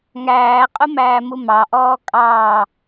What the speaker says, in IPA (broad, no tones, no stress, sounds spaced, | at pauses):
ŋ æː qʼ ʊ m æː m u m ɑ ʔ ɔː kʼ ɑː